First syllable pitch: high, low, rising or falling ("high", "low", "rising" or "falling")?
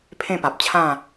falling